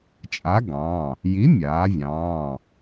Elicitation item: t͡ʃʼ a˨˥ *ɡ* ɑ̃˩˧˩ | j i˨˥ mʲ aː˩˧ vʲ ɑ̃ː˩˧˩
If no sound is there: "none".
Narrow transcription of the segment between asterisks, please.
ɡ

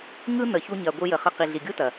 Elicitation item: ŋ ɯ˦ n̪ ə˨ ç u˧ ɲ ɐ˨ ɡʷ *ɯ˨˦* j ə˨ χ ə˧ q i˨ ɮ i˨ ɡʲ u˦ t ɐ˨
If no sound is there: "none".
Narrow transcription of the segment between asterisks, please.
ɯ˧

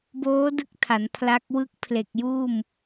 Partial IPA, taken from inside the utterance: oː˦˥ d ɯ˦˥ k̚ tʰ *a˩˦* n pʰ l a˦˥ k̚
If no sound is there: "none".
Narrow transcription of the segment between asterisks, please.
a˩˦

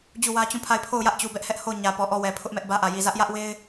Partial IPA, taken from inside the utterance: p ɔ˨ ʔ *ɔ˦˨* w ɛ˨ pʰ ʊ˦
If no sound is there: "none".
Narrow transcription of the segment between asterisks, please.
ɔ˦˨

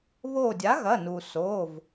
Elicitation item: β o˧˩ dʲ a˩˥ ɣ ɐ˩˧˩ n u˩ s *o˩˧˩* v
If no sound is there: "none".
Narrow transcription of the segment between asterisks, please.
o˩˧˩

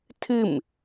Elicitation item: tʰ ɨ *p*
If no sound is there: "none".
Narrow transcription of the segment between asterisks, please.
m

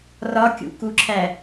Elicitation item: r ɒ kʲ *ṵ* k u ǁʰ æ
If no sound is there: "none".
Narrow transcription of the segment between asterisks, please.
ṵ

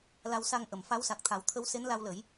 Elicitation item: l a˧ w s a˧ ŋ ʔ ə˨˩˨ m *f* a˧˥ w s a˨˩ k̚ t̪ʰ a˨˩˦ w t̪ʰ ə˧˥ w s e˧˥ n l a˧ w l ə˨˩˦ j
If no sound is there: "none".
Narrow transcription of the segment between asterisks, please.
f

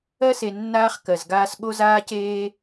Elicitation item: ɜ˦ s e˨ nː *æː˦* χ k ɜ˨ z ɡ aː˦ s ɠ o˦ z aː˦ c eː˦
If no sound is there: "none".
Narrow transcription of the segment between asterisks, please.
aː˦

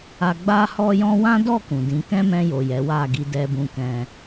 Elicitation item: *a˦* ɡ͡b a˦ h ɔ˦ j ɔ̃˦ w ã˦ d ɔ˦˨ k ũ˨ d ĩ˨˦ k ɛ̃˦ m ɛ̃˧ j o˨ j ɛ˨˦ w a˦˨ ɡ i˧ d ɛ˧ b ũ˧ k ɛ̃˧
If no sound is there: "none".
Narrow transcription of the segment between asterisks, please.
a˧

